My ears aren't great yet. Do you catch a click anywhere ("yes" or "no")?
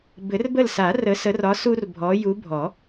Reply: no